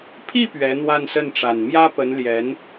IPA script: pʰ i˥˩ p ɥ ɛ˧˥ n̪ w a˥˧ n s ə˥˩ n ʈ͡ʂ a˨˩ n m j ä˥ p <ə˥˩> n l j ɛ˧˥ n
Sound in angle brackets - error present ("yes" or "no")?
yes